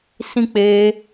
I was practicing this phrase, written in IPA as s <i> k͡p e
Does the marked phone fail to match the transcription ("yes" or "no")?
yes